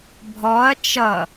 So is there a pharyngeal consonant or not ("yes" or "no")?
no